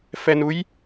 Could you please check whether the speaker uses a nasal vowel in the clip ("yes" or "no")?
no